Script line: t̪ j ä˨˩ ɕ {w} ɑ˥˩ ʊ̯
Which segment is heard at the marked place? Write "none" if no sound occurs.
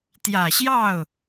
j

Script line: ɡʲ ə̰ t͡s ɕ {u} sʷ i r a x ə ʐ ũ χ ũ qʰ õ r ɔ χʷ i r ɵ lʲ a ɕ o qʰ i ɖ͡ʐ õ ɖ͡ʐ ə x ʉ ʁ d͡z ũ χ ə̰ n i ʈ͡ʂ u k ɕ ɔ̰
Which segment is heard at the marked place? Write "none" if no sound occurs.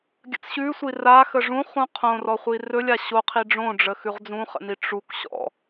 ʉ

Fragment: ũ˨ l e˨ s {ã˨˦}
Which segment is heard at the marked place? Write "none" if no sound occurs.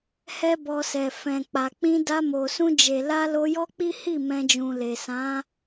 ã˨˦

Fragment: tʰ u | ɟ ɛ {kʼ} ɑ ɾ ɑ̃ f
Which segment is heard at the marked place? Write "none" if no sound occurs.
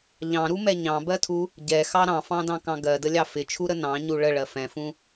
x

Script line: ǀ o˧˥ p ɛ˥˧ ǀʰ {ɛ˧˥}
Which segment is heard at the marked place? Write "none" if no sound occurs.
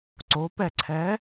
ɛ˧˥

